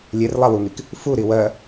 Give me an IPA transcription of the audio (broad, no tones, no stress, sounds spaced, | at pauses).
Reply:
lʲ e r lˠ a w u ŋ i k | f u ɾ i w ɜ